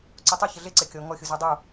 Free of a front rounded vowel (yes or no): yes